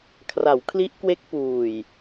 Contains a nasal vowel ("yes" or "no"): no